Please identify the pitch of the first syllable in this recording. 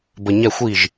low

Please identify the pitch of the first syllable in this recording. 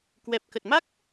low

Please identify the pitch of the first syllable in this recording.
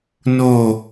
falling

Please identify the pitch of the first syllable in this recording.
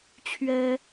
high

